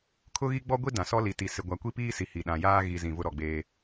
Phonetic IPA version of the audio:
kʰ ʊ˦ ɣ i˦ ɡ͡b ɔ˦ ɡʷ i˦ d ã˨ s ɔ˦ l i˨ t i˨ s ɪ˨ ɡʷ a˨ kʷ i˦ p iː˦ s i˨ h i˨ ɗ ã˨ j aː˦ ɣ i˨ z ĩ˨ v ʊ˦ ɾ ɔ˨ ɡ͡b eː˦

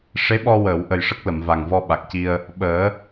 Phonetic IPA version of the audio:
ʂ e˧˥ ɓ ɔ˧ w əː˨˩˨ w ʔ ə˨˩ j ʂ ə˦˥ k̚ l ə˨˩˨ m v a˨˩ ŋ v ɔ˧ ɓ a˨˩ k̚ c i˧ ə̯ | ɓ əː˨˩˦

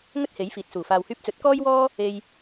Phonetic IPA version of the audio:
ŋ ɵ˥ t̚ h e˨˥ j f iː˨ t̚ s uː˨˩ f aː˨ w h yː˧ p̚ t͡s ɵ˨˥ t̚ k ɔː˥ j w ɔː˥ | e˧ j

